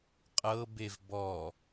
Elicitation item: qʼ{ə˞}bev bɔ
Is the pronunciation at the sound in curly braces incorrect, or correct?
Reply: incorrect